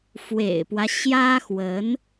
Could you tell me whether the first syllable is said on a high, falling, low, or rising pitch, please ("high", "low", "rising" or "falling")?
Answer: low